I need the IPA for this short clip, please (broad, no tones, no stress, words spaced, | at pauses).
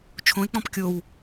t͡ʃʰõe̯k͡pɔ̃p kʲow